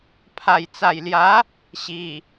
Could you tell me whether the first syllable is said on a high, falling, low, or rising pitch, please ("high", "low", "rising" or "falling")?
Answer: low